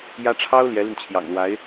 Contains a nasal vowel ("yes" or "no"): no